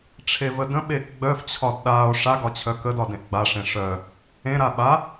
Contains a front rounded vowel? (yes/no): yes